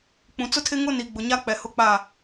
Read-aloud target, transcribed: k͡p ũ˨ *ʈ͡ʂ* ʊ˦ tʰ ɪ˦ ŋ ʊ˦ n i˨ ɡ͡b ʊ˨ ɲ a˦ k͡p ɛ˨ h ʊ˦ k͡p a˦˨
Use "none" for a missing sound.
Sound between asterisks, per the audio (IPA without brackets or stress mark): t͡s